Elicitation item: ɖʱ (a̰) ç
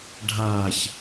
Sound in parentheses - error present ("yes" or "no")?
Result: yes